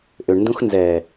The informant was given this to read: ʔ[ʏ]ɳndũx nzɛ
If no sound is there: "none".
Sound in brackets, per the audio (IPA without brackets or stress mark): ʏ